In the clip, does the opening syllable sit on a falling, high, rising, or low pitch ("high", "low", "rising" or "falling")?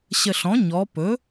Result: low